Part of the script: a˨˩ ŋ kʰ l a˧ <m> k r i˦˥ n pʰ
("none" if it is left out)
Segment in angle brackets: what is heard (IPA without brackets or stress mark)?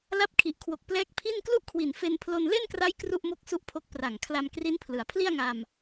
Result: m